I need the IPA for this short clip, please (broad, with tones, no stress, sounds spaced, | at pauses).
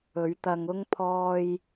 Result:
ɵ˨˧ ɥ t̪ ɐ˧ ŋ ʊ˥ ŋ pʰ ɔː˧ j